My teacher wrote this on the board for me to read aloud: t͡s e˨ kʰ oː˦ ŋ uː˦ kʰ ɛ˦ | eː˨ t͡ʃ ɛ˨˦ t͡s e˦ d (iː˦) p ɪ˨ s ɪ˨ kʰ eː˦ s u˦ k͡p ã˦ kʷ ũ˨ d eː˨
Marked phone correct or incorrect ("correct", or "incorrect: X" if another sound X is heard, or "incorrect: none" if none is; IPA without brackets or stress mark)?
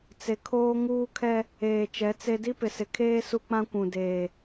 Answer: incorrect: i˦